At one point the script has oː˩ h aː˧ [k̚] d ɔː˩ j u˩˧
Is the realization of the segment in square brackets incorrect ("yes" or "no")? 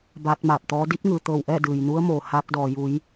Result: no